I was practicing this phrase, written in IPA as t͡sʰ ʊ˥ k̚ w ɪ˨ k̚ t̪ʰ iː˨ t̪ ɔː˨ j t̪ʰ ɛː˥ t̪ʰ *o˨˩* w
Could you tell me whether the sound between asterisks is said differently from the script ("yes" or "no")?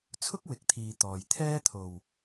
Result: no